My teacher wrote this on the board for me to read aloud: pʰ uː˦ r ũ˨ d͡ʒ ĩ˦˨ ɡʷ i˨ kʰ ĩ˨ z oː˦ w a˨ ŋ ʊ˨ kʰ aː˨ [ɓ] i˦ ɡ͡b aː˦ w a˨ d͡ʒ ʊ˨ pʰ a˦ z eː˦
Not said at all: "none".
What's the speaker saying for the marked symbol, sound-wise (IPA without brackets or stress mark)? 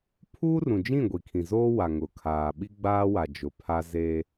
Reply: ɓ